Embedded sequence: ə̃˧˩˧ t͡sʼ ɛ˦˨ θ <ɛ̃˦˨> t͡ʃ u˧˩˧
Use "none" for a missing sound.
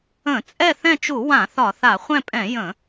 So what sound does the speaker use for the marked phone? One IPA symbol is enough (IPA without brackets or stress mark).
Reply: ɛ̃˦˨